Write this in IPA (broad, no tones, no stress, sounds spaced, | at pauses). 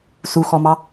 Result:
s u x ɔ m ɑ